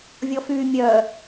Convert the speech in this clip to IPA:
vʲɔfyːmʲœ

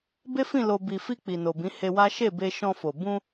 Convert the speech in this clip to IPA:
be˦fĩ˦˨ lo˧ bi˨fi˧ k͡pi˨no˨bĩ˨˦ he˧wa˦ ʃe˦˨be˧ ʃɔ̃˧fo˨ bũ˧

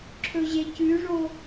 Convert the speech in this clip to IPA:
ǁʰɵʑecʉʐo

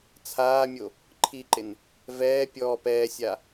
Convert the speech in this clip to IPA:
t͡sʰaːmʲo | ǃʰiǃɪn | vɛː pʲɔːp ɛːsʲa

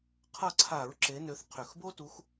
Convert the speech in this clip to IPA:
qʰʌ˦˨ǀʰa˧˩˧ɹ ǁe˨˦nø˨˦θ qʰø˨˩xbo˥tu˨˦x

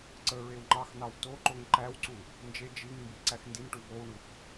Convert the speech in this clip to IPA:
ǀə ɹewŋ͡ǃɑxnɑw toǃoŋ ǃæwǀu | nd͡ʒe d͡ʒiŋmbi ǀæxndinʈu vowɳux

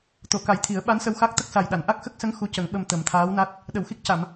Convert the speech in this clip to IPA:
t̪o˨˩˨ka˨˩˦j t̪ʰi˨˩˦ə̯ɓa˧˥nsə˧w xa˦˥k̚t̪ə˦˥k̚sa˨˩jɗa˨˩˨n ʔa˦˥k̚xə˦˥k̚sə˧˥ŋ xu˧˥cə˨˩˦ŋɓə˧m t̪ə˨˩˦mt̪ʰaː˧˥wna˦˥t̚ | ɗə˨˩˨wxi˦˥k̚ca˨˩˨m

